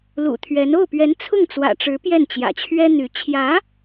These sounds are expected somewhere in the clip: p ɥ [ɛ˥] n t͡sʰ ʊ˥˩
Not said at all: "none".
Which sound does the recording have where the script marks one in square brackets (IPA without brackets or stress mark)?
ɛ˧˥